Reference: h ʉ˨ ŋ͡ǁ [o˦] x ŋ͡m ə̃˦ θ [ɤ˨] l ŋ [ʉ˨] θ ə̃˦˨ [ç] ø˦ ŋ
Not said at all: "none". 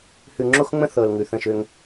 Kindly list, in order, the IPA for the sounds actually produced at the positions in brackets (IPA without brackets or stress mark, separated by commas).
o˦, ɤ˨, ʉ˨, ʃ